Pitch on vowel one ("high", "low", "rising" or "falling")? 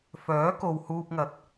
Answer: rising